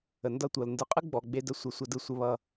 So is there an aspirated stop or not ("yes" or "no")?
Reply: no